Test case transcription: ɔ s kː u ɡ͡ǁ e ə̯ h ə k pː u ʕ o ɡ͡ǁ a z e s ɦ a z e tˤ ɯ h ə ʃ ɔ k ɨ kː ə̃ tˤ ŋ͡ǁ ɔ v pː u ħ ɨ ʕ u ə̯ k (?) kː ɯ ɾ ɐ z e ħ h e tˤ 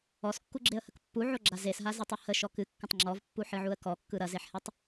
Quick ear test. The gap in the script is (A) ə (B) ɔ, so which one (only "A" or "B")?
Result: B